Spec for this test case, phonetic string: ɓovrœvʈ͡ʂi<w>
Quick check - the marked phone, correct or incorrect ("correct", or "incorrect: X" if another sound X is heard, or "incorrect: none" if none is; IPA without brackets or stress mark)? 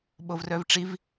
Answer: incorrect: v